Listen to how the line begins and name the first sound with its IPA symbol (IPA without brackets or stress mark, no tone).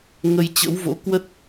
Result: ŋ